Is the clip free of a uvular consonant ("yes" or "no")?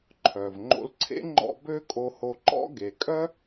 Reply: yes